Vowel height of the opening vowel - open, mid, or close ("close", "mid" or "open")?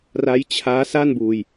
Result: open